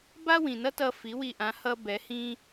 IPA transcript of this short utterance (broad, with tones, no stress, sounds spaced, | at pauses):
b a˥ w ĩ˩ n ʌ˥ t ʌ˧ f i˩˥ w i˧ ʔ ã˩˥ h ʌ˥ b ɛ˩˥ h ĩ˥